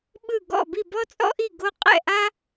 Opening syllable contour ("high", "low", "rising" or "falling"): falling